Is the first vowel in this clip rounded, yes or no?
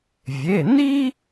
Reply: no